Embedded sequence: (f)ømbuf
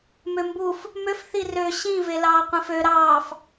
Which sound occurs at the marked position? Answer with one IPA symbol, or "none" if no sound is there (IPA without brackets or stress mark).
m